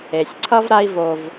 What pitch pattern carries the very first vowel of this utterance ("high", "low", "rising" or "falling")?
low